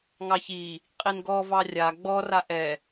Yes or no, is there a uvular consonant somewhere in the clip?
yes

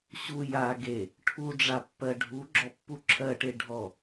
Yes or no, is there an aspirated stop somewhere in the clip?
yes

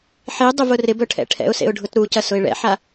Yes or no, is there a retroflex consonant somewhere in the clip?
yes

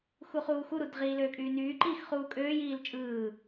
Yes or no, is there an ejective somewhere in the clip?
yes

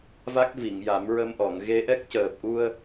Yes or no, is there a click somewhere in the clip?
no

